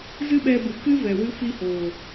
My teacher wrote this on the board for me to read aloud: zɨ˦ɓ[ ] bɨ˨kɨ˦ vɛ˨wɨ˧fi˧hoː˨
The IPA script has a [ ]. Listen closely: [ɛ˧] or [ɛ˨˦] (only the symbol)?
ɛ˧